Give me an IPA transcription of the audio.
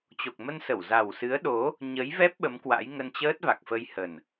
t͡ɕ o˨˩ k̚ m ə˧ n s ə˧˩ w z a˨˩ w s ɨ˨˦ ə̯ ɗ o˨˦ | ɲ ə˨˦ j v ɛ˦˥ p̚ ɓ ə˨˦ m k w a̰˧˥ j ŋ ə˧ n t͡ɕ əː˦˥ t̚ v a˨˩ k̚ f ə˧ j h ə˨˩ n

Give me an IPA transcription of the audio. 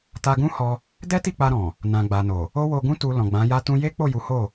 t a˧ ɡ ũ˦ h ɔ˧ | d ɛ˦ t i˦˨ k͡p a˧ ɾ ɔ̃˨ | n ã˨ ɡ͡b a˨ n o˨ | o˦ w o˧ ɡ ũ˦ t u˧ l ɔ̃˨ ɡ͡b ã˨˦ j a˦ t ũ˦ j e˦ k͡p o˦˨ j u˨˦ h o˦˨

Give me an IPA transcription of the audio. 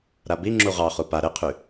ɾ a b i ŋ͡ǁ u ʁ ɑ χ u p a ɾ ɘ qʰ y

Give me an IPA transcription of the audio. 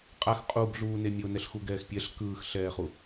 qʼ a x qʼ u b ɮ uː n e mʲ o n ɛ ɬ x u ɡ ɛː x pʲ ɛ ɬ k ɯː x ɬ ɛː χ u

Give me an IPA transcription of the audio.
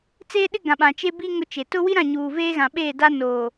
t͡s eː˦ ɗ ɪ˦ ɡ ã˨ ɓ ã˨ t͡ʃ e˦ b i˦ ŋ ʊ˦ t͡ʃ e˨ t ʊ˦ w i˦ ɾ ã˦˨ ɲ uː˨ v eː˦ ɣ ã˨ ɓ e˦˨ d a˦ n oː˨

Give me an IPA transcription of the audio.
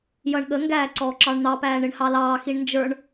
j ʌ ɳ ɠ ə ŋ ɡ æː ǀ ɔː ǁ ɑ ɳ n̪ ɑ p æː ɳ ɪ ɳ h ɑ l ɑː x i ɳ n d͡ʒ ə˞ ɳ

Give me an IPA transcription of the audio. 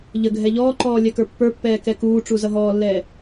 ʎ ə ɡʱ ɛ ʎ ɔː ǃ ɔː lʲ ɛ k ə˞ pː ə˞ pː ɛː k ɛ k uː ʈ͡ʂ u z ʌ ɦ ɔː lː ɛː

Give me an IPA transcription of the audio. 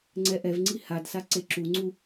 ŋ͡ǀ ɛ ʔ ɛ v ŋ͡ǀ i h a d s a ǀ e ǁ u ŋ͡ǀ u

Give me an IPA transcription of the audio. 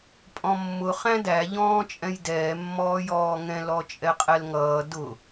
pʼ ɔ̃ mː ʊ χ æ̃ d æ ʎ ɔ̃ː t͡ʃʼ ɛ̃ j d ɛː mː ɔː j ɔː ŋ ɛ̃ l ɔ t͡ʃʼ ɛ qʼ ɛ l ŋ ʌː d ʊ

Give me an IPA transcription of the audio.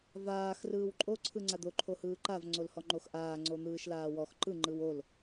v aː x r ɯː w ǃʼ o ǀʰ ɯ ŋ͡ǀ a d̪ o ǃʰ o h ɯː ǃ a v ŋ͡ǀ o l h ɔ ŋ͡ǃ o x ʔ aː ŋ͡ǀ o n̪ ɯː ʃ l aː w ɔ x ǃ ɯ ŋ͡ǃ ɯ w o l

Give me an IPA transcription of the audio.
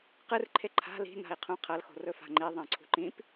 q ɨ r ǃʰ e ǃʰ a̤ l i̤ n a̤ i̯ qʰ ũ qʰ ɐ l x o̤ r ɵ f a̤ ŋ͡ǃ i ðˤ ẽ ǀʰ ṳ ǃ ĩ p

